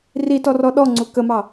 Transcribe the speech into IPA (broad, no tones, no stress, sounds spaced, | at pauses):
r i t ɔ r ɔ ɗ ɔ ŋ͡ǀ u k ə m ɑ